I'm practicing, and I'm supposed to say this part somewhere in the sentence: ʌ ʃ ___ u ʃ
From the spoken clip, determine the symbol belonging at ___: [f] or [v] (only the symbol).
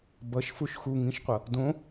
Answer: f